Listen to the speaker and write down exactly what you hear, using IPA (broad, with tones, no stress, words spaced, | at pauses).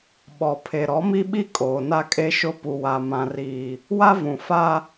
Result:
ɓɔ˨pʰe˨ ɾɔ˨˦mi˦ɓi˦ kʼoː˨na˦kʼe˦ʃʊ˦ pu˨wa˨ mã˨riː˨ | wa˦vũ˨fa˦